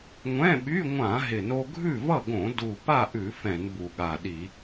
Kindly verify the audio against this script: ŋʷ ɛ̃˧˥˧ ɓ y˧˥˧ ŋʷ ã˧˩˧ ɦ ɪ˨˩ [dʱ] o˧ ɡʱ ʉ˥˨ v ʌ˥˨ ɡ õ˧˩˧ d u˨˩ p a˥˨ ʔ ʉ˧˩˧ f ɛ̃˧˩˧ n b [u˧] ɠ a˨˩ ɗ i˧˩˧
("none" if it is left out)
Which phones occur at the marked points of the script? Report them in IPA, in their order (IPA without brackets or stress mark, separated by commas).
n, u˨˩